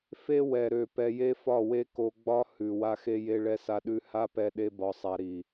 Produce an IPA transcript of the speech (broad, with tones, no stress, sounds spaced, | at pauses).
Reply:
f e˦ w ɛ˨ ɾ ø˨ p ɛ˧ j e˦ f ɒ˦˨ w e˦ k o˧ ɡ͡b ɒ˦ h ʉ˨ w a˧ x e˧ j e˧ ɭ ɛ˧ s a˧ ɗ ʉ˧ h a˦ p ɛ˧ ɗ e˦ b ɒ˧ sˤ a˧ ɾ i˨